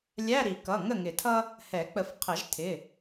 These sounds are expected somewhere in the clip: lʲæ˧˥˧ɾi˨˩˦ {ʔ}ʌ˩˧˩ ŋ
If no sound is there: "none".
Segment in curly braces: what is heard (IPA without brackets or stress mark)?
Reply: k